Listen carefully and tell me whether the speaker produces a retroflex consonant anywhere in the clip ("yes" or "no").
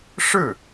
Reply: yes